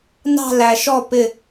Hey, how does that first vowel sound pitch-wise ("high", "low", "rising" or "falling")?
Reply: falling